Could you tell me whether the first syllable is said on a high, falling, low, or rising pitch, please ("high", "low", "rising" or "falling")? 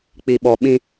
low